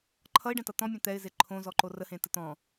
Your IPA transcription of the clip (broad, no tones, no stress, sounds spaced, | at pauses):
ǃʰ ʌ ɪ̯ ɖ ɛ̃ t ʌ t̪ ɔ̃ mʲ ẽ t̪ ɛ ɪ̯ z e ǃʰ õ z ɔ ǃ o r ə h ẽ t ə t̪ ɔ̃